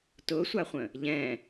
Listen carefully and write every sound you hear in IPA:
tʊsʷaχʷə̃ | ʎɛ̃

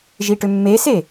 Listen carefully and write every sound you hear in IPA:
ʒiʈʏmːese

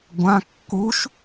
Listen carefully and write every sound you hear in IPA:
ɡʷã kːuʃ

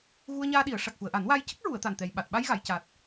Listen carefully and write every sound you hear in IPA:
ɣu˧ə̯ɲaː˧ɗi˨˩˨ə̯ʂa˨˩k̚ xu˨˩˨ə̯ʔa˨˩˦nwaː˧j cə˦˥k̚ɹu˨˩˨ə̯ t̪a˨˩nt̪ɛ˨˩j ɓa˨˩t̚ ɓa˧jɣa˨˩˨jca˨˩t̚

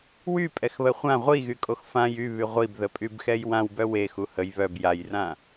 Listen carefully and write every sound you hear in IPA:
wypʼɛxβə χʷã ʁʷiɣykʼox fãj yβy ʁʷibðəpʼybxɛj wãwbœ wexu həj βœb jajrã

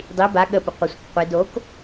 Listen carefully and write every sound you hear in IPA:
dˤi ba ɠəpʏ qʷəsʷik qʷid ok

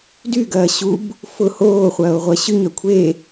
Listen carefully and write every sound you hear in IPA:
dyɡɐː ɕub | fʊ hoːχʷɐːo̯ ʁʷɐɕyɲœ kʷʰe

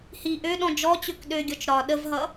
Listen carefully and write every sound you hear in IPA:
hi ʔøɗɔ̃ d͡ʒɔt͡ɕøk ɗøɡʲɔt͡ʃ ɾɒ ɗəvɦʌ

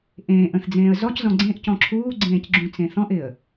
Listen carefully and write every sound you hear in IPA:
ʔẽːʔ ə̃θd͡zẽːə̯ zɔczɔ̃ ɡ͡ǀẽʔcɔ̃ ǁʰuːɡ͡ǀẽːc ɡ͡ǁũt͡sẽθɔ̃ʔɪə̯

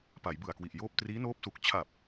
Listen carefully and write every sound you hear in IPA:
pa˩˦jbɯ˨˩a̯kwi˨˩ʔjoː˥˩p̚ triː˦˥noː˦˥p̚su˨˩k̚ t͡ɕʰa˨˩p̚

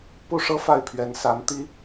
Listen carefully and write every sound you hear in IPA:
pu˥˩ʂɤ˥ fa˥˩ɪ̯pʰɥɛ˧˥nsa˧˥n t̪i˥

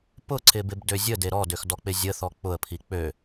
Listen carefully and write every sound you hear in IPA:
pʊǀɪbɪbdø zʲəde ɾɔdøxdɔk͡pɪ zʲəθɔ k͡pʊə̯pʰi k͡pø

